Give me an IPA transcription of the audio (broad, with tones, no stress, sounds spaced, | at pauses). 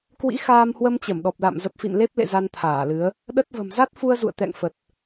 k w ḭ˧˥ x aː˧ m h w ə˧ m t͡ɕ ə˧˩ m ɗ ɔ˨˩ p̚ l a̰˧˨ m z ə˨˩ p̚ f ḭ˧˨ n l e˦˥ p̚ l ḛ˧˨ z a˧ n t̪ʰ aː˧˩ l ɨ˨˦ ə̯ | ɗ ə˦˥ t̚ v ə̤˨˩ m z a˦˥ t̚ f u˧ ə̯ z ṵ˧˨ ə̯ t̪ ɛ̰˧˨ ŋ f ə˨˩ t̚